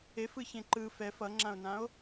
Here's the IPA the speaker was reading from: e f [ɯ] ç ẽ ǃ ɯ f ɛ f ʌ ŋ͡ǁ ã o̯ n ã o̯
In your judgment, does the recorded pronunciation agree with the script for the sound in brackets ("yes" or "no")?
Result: yes